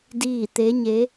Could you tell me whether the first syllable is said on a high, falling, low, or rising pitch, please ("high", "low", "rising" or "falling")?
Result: falling